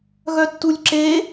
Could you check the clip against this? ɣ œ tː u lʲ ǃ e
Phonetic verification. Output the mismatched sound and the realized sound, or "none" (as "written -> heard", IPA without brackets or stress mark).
ǃ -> ǁ